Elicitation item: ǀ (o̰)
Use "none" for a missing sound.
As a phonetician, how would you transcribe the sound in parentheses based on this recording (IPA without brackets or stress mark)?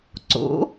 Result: o̰